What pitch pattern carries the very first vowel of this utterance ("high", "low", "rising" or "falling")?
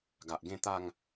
low